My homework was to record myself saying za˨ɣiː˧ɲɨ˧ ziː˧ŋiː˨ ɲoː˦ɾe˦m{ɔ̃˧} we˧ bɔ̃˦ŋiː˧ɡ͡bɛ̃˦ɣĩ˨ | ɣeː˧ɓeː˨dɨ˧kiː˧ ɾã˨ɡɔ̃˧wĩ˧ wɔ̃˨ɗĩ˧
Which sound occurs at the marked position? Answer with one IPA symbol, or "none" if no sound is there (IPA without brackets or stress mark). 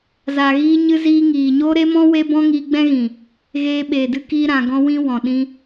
ɔ̃˦